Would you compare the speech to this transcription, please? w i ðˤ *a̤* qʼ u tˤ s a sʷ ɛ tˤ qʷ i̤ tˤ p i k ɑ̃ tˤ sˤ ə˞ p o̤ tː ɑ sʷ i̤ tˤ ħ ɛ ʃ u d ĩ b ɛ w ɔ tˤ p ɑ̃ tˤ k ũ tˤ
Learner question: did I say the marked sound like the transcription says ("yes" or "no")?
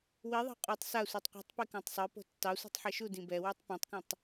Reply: no